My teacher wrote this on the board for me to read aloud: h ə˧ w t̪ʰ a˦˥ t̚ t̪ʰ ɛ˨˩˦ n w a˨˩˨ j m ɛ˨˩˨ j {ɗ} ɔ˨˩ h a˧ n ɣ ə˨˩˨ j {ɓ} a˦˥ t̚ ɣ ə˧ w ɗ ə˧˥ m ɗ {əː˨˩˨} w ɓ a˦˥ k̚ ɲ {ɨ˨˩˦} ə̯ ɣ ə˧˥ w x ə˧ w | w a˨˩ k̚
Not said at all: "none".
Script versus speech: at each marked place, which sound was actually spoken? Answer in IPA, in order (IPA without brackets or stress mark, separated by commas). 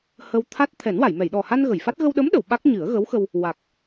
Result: ɗ, f, ə˨˩˨, ɨ˨˩˦